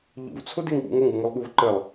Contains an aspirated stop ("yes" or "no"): yes